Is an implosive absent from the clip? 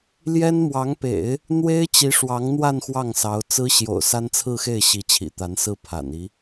yes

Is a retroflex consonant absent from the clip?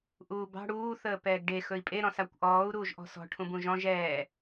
no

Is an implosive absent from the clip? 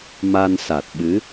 no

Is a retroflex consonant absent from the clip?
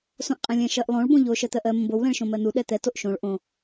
no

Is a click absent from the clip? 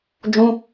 yes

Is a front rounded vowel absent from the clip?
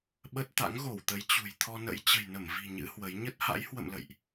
yes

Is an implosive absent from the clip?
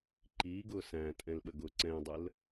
no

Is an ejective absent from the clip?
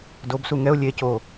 yes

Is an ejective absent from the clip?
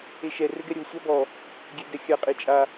no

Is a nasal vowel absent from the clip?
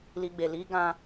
no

